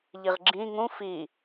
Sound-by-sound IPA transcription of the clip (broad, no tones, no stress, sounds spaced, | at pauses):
ʎ i ʁ ɡ͡ǁ ĩ ŋ ũ f i